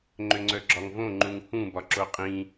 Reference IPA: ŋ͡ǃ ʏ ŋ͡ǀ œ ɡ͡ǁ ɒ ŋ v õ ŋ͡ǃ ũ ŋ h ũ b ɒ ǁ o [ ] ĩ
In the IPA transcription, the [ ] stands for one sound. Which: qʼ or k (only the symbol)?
qʼ